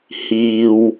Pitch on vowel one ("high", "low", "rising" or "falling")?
low